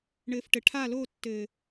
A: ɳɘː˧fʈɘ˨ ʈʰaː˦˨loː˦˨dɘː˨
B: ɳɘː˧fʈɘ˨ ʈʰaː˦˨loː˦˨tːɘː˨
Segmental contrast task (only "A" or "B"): B